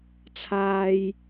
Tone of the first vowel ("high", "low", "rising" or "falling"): high